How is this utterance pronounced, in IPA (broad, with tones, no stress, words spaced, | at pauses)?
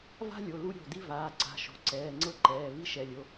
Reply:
va̤˥lʲo˩˧˩ lu˥ɾʲo̤˩˧˩di˥ vaː˩˧˩ǀa̤˩˧˩ʃo̤˩˧˩ǀɛː˩˧˩ ŋ͡ǀɤ˥ǃɛː˩˧˩ vi˥ʃɛ˩˧˩lʲo˩˧˩